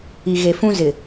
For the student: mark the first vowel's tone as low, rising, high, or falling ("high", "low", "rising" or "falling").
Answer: low